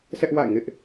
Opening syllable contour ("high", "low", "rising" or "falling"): high